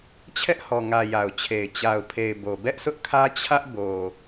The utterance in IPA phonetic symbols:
t͡ɕʰ ɛ˦ ʔ h ɔ˨ ŋ ä˨ j a˨ ʊ̯ t͡ɕʰ e˨ ɪ̯ t͡ɕ a˨ ʊ̯ pʰ e˨ ɪ̯ b o˨ b ɛ˦ ʔ sʰ ʊ˦ ʔ kʰ ä˦ t͡ɕʰ ä˦ ʔ b o˨

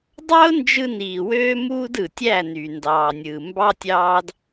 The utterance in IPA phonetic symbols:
dˤ ɑ˦ ʊ̯ n d͡ʒ ɯ˧ n iː˨ w øː˦ m uː˦ d ɯ˨ tʲ æ˦˨ n y˨ n d ɑː˨ nʲ ɯː˨ m b ɑ˦ tʲ ɑː˦ d

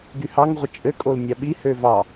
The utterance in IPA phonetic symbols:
ɡ y h ɑ ŋ ʁʷ ə t͡ʃʼ ɘ kʼ o l nʲ ɑ ɓ i h ø v ɑ

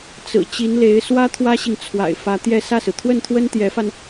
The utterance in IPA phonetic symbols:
t͡s ɹ̩˨˩ t͡ɕ i˧˥ n l e˧˥ ɪ̯ s w ä˥ t̪ʰ w ä˥ ɕ i˨ ŋ t͡sʰ w a̰˨˩ ɪ̯ f ä˧˥ t̪ j ɛ˥˧ s ä˥˩ s ɹ̩˩ t̪ʰ w ə˥˩ n t̪ʰ w ə˥ n t̪ j ɛ˧˥ f a˧ n

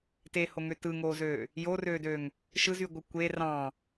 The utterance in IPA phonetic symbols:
t e h o ŋ ø t ɯ ŋ oː z øː | j o r øː d ø ŋ | ʃ ɯ z y ɡʷ ɯ kʷ e r ɑ̃

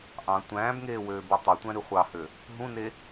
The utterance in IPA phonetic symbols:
ʔ ɑ̃ tʷ æ̃ː b ŋ eː w øː b u tˤ o tʷ æ̃ ɾ y χʷ ɑ h ø | ɦ ũ n e

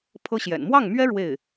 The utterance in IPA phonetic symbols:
pʰ ɤ˥ ɕ j ɛ̰˨˩ n m w ɑ˥˩ ŋ m ɥ ɛ˥ ɻ w e˥˩ ɪ̯

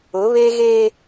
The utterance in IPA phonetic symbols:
ʊ˨˦ β e˦ ɣ eː˦

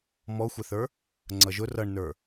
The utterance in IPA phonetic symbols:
m ɔ xʷ ɛ θ ə˞ | ŋ͡ǀ ʌ ʒ ʊ r ʌ ɳ n ə˞

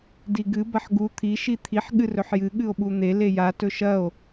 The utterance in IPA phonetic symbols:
d i ɡ ɨ b ɐ ħ ɡ u t̪ʰ i ʃ i t̪ʰ i ħ ɠ ɨ r ɵ ħ j ɨ ɠ ɨ o̯ ɓ u n̪ e l e j a t ɵ ʃ ɐ o̯

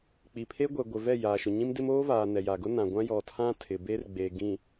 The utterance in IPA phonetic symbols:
k͡p i˨ pʰ e˦ ɡʷ ɛ˨ ɡʷ ɪ˨ v ɛ˦˨ j aː˨ ʃ ʊ˨ ɲ ĩ˦ m d ɪ˦ m oː˦ v aː˨ n ɛ˨ j a˨ ɡ ʊ˦ n ã˨ ɡʷ ã˦ j ɔ˨ tʰ ã˦ tʰ ɪ˨ b e˦ r ɡ͡b eː˨ ɡ ĩ˨

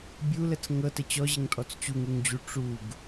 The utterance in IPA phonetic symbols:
bʲ u l ə t͡s ŋ ɤ t ə t͡ɕ ɔ ʑ ə ŋ tʼ ɔ t͡s t͡ɕ u ŋ u ŋ d͡ʑ u ʈ͡ʂ u ɡ

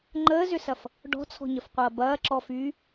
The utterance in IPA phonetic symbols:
ŋ͡ǃ əː z ʏ s ɐ f | ɖ ɔ̤ t͡sʰ ɔ̤ ɲ ə f qʷ ɐː b ɐː ǁ ɔ f yː

